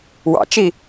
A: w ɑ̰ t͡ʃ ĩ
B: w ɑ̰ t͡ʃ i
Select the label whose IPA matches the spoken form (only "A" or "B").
B